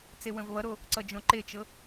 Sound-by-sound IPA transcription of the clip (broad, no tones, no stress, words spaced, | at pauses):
t͡sewə̃vβʌɾo | ǀʌd͡ʒõǃet͡ʃɤ